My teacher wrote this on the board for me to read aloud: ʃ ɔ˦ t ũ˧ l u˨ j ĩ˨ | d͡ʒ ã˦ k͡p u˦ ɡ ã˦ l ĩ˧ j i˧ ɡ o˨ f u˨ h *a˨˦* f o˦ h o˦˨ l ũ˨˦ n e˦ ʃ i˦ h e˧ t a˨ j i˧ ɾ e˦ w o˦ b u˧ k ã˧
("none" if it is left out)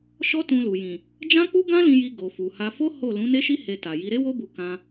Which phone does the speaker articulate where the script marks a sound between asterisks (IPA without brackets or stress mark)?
a˧